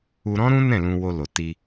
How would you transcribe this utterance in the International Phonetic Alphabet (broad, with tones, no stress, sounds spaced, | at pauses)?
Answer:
u˧ ɾ ɔ̃˦ ɾ ũ˦ n ɛ̃˦˨ l ũ˧ w o˧ l o˨ t i˧